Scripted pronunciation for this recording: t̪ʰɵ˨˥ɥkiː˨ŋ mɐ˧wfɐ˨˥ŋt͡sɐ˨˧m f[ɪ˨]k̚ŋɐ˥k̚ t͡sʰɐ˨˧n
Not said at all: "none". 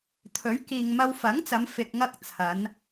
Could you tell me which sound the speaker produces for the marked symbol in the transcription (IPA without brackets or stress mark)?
ɪ˧